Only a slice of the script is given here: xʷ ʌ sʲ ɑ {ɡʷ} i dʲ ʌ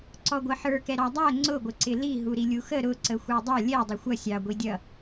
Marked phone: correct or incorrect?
correct